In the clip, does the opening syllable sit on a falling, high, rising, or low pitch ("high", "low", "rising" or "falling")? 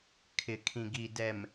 low